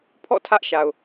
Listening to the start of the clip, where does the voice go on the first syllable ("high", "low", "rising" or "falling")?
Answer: falling